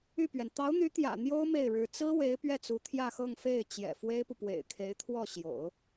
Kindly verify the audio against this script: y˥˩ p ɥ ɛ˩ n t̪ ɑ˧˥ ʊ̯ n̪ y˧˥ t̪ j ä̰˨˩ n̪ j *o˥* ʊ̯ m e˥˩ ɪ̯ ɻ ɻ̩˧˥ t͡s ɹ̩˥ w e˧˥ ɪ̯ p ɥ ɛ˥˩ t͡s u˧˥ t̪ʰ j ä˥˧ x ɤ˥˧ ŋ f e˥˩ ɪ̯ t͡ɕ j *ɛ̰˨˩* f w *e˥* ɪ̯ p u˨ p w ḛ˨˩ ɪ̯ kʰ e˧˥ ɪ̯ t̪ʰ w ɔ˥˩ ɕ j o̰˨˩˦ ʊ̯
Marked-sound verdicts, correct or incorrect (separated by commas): correct, correct, correct